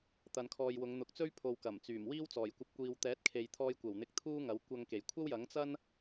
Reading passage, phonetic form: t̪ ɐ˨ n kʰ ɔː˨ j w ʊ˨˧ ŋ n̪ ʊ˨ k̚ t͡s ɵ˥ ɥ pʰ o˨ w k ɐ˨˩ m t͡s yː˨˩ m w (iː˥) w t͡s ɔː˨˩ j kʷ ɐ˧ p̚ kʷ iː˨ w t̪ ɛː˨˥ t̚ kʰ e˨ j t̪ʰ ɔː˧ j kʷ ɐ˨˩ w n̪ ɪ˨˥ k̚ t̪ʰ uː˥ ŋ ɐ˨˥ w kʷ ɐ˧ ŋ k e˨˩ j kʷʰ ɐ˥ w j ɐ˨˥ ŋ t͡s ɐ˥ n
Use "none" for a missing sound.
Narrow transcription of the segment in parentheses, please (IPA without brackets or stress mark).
iː˥